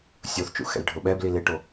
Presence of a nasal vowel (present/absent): absent